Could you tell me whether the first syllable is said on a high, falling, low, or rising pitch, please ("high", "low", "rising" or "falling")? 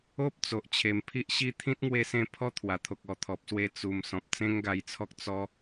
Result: high